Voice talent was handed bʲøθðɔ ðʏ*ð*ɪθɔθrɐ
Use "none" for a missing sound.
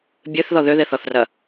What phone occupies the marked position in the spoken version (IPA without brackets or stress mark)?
ð